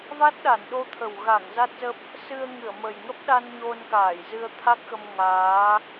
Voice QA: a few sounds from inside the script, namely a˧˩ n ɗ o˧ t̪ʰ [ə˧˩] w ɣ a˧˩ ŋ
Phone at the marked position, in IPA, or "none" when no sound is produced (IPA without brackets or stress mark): ə˨˩